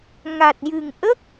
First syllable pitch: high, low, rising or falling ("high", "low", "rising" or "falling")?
low